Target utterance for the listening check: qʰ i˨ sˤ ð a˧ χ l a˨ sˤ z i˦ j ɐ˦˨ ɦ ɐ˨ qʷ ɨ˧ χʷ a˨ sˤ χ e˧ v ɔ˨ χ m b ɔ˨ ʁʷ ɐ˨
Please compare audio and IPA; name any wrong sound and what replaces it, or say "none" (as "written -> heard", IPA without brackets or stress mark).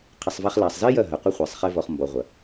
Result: ð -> v